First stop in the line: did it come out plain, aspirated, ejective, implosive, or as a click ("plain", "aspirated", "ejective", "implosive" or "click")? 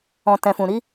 plain